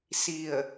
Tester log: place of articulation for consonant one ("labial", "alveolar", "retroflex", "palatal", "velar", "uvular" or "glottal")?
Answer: alveolar